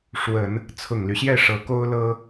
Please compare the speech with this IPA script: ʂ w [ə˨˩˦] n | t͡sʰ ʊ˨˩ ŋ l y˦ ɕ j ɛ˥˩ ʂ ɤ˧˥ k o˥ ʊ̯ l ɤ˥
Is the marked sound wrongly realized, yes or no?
no